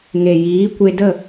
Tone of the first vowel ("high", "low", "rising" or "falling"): low